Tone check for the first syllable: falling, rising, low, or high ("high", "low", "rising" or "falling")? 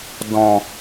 low